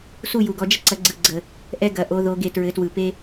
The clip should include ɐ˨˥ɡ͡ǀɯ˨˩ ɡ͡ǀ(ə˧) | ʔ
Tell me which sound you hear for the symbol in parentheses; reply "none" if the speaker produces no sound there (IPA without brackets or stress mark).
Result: ə˨˩